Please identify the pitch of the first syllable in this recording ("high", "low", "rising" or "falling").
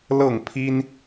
falling